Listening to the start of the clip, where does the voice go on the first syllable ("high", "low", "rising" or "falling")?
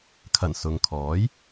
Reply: low